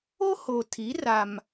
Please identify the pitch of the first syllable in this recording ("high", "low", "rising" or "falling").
high